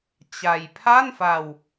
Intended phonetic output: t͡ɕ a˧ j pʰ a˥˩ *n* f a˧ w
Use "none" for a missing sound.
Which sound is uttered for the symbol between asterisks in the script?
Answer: n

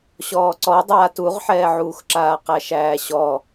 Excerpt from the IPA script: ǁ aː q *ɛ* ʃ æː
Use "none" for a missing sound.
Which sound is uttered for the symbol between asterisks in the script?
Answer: æ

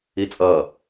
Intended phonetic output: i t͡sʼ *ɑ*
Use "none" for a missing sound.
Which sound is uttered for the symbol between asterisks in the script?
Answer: ʌ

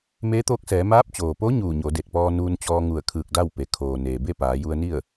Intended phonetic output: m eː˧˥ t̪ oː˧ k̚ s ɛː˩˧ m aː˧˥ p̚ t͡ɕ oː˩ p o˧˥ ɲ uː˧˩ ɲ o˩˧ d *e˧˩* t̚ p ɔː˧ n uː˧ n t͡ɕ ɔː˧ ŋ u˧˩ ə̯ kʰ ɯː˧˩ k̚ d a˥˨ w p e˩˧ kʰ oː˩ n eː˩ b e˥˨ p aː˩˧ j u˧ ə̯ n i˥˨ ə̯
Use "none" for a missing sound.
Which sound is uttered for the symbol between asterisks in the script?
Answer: e˧˩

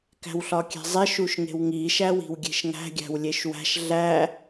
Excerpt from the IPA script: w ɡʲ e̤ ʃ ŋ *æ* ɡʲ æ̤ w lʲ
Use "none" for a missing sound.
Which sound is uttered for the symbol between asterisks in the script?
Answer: æ̤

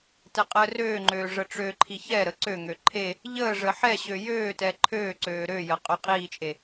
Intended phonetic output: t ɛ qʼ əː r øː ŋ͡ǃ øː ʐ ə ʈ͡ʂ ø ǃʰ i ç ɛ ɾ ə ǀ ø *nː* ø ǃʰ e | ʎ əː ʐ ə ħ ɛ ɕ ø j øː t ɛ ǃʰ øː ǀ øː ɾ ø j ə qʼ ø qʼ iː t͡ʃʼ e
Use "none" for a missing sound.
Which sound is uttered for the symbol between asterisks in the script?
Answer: ŋ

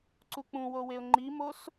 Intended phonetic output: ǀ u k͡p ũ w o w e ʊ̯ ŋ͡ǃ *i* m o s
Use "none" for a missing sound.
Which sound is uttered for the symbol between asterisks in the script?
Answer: i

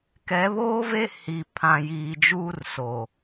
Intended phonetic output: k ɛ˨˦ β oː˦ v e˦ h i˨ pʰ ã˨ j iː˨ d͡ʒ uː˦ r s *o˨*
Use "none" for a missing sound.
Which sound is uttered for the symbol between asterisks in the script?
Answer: o˨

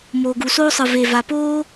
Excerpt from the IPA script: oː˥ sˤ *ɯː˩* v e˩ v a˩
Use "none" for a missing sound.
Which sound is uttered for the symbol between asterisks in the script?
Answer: ɯ˩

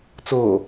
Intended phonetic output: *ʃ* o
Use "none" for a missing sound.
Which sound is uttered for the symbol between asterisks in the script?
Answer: t͡s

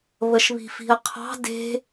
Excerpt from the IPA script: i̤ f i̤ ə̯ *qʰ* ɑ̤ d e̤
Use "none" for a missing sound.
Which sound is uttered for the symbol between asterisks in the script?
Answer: qʰ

